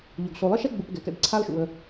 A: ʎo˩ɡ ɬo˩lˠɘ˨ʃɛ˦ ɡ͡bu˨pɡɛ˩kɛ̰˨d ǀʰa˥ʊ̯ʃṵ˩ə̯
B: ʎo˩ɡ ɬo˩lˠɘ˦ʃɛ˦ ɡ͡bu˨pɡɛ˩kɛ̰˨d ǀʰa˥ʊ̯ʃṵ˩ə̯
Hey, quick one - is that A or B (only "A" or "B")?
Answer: B